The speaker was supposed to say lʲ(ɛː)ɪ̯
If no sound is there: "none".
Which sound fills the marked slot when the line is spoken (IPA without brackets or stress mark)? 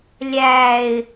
æː